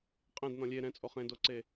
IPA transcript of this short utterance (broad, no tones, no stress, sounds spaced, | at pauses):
qʼ ẽ d n ɔ̃ lʲ e ɾ ɛ̃ t͡sʼ o χ ẽ d o ǀ e